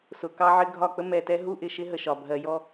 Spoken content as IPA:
s ʊ˨ k ɑ˦ ʕ ɪ˦ ɡʱ ɒ˦˨ k͡p ə˦ m ɛ˨ t ɛ˦ ɦ u˦ ʔ ɪ˨ ʃ ɪ˦ ɦ ə˨ ʃ ɒ˨ bʱ ɜ˨ j ɔ˦

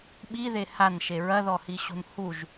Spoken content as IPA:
ɓ i ð e h a n ʃ e ɹ ɐ ð ɔ h i ɕ ṳ n h u ʒ

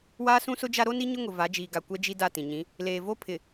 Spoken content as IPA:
w aː˦ s ũ˦ s ʊ˦ d͡ʒ a˦ ɾ o˦ n i˦ ɲ ʊ˦ ŋ ʊ˨ v a˨˦ d͡ʒ iː˨ ɡ a˨ kʷ ɛ˦ d͡ʒ i˦ d a˦˨ t ĩ˨ ɲ ĩ˨˦ | l eː˨ v o˦ pʰ ɪ˨

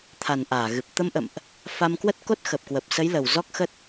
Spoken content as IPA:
t̪ʰ a˨˩ n ʔ aː˧˩ ɣ ɨ˨˩ p̚ t̪ ə˧ m ʔ ə̰˧˨ m ʔ | f a˧ m k w ə˦˥ t̚ k o˦˥ t̚ x ə˨˩ p̚ k w ə˨˩ p̚ s ə˨˦ j l ə˨˩ w z ɔ˦˥ k̚ x ə˦˥ t̚

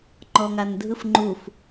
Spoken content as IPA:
ŋ͡ǃ ɔ ŋ a n dʱ ɯ f ŋ͡ǃ u f

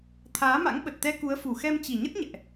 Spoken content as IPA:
t̪ʰ aː˨˦ m a̰˧˥ ŋ ɓ ə˨˩ t̚ t̪ ɛ˧ k u˨˦ ə̯ f u˨˩ x ɛ˧ m t͡ɕ i˨˩ ɲ ə˦˥ t̚ ɲ ɛ̰˧˨ ʔ

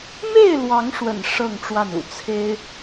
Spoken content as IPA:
m e˥˨ ɪ̯ l w ɑ˨˦ ŋ ʂ w ə̰˨˩ n ʂ ɤ˥˨ ŋ ʈ͡ʂ w a˥˨ n ṵ˨˩ t͡sʰ e˦ ɪ̯

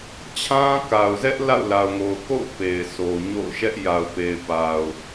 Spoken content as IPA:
t͡ɕʰ ã˦ k a˨ ʊ̯ z ɛ˦ ʔ l a̰˦˨ ʊ̯ l a˨ ʊ̯ ŋ o˨ ʊ̯ k o̰˦˨ ʊ̯ p e˨ ɪ̯ s o˨ ɲ o̰˦˨ ʊ̯ ʃ ɛ˦ ʔ j a˨ ʊ̯ p e˨ ɪ̯ p a˨ ʊ̯

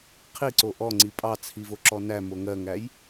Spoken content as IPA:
qʰ i ǀ o ʔ ɔ ŋ͡ǀ i pʼ ɑ t͡sʰ i v o ǁ ɔ n æ m o ŋ ɜ ŋ æ j

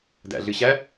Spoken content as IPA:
d æ̰ ɮ ɨ ɕ æ

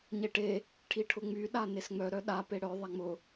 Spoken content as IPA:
ɲ e ʈ e | ʈʰ i ʈʰ ʊ ŋ͡m y ɗ a n e s ŋ͡m œ ɾ œ ɗ a p e ɽ œ ðˤ a ŋ͡m ʊ

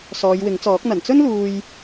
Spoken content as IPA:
s ɔː˨˧ j w ɪ˨˥ ŋ t͡s ɔː˨˥ k̚ n̪ ɐ˨˩ n t͡s ɵ˥ n l uː˨ j

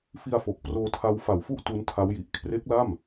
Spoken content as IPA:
f i˧ a̯ f o˨˩ k̚ p r oː˧ tʰ a˦˥ w f a˨˩ w f u˥˩ ʔ t u˦˥ n tʰ a˦˥ w j i˨˩ ʔ kʰ r e˦˥ k̚ l a˥˩ m

